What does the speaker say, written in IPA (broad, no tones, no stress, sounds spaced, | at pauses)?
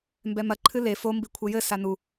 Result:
m b ɛ m ɐ ǃʰ ɨ l e f o m b i kʷʰ ɘ j ɘ s a n u